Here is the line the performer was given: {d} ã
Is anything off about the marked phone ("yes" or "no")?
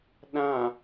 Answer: yes